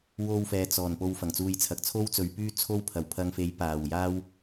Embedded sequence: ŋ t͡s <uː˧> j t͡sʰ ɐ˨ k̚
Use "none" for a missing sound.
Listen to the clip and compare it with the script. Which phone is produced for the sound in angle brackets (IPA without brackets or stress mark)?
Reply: uː˧